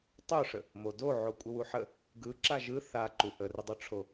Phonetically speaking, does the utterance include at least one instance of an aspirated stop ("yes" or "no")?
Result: yes